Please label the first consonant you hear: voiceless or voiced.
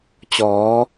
voiceless